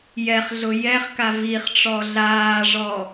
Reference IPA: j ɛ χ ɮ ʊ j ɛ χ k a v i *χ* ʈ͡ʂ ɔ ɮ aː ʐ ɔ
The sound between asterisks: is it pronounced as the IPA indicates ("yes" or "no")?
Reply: yes